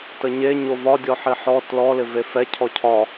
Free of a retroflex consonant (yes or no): yes